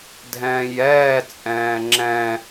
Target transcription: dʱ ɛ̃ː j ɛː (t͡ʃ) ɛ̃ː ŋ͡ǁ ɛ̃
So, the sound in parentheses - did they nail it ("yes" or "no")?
no